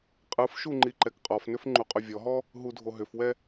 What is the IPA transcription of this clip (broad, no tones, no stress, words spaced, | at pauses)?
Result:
qʼɯfʃu ŋ͡ǃiǃɛkqʼɔfnʏf ŋ͡ǃuqʼɵvʲɔɦɔ | ɦudʱoɦʏfwɛ